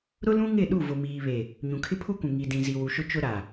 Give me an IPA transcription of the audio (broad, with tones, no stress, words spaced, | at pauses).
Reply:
ɾʊ˦lũ˦ŋɪ˦˨ ɗu˦˨vʊ˨miː˨βe˨ | ɲũ˨kʰɪ˦pʰu˦kʷũ˨ ŋi˨dĩ˨zi˨ wu˨ʃʊ˦t͡ʃʊ˦ ɾa˨